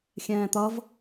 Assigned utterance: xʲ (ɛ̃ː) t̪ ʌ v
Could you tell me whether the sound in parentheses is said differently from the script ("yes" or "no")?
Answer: no